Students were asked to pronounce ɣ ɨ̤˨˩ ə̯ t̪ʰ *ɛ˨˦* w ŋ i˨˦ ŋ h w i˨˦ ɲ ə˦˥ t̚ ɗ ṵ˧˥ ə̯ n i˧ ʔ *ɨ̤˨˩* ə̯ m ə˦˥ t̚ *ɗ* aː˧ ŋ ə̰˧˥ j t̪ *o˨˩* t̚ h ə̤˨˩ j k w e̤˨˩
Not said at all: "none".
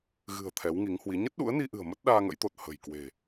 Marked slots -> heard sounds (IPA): ɛ˨˦, ɨ̤˨˩, ɗ, o˨˩

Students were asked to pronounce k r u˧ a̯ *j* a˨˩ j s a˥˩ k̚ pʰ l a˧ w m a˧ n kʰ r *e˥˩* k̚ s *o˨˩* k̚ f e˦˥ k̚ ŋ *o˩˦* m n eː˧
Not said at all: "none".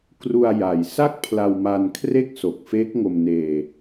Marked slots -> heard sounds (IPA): j, e˥˩, o˨˩, o˧

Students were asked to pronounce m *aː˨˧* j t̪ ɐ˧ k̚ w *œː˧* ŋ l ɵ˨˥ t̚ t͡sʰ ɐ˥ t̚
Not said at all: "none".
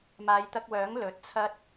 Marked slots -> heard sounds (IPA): aː˨˧, œː˨˥

